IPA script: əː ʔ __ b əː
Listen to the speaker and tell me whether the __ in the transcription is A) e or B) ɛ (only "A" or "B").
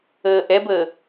B